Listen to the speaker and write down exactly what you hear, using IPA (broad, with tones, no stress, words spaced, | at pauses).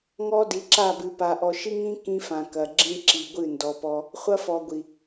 ŋɔ˦ di˨ǁa˦˨bɨ˨ pa˨ʔɔ˨ʃi˦ŋĩ˦ kĩ˦fã˨kɐ˨ɡ͡ǁĩ˦ ǁi˨ɡʷɨ˦˨ndɔ˨pɔ˦ | χʷɐ˦fɔ˨ɡʷi˨